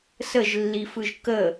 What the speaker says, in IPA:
səʒlːifɯʒ kə

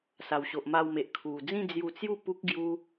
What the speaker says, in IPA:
sa˨˩wɕo˨ʔma˧wme˨ʔ kʰu˨˩d͡zĩ˥˧ d͡zju˧t͡sju˥˧ pu˦k̚ ɡju˧

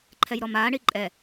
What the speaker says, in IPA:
ǃʰɛjɾɔmaː ɳiǃʼɛ

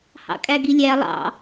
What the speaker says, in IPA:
hɑ̰kʼæɡilʲæ lˠɑ̰

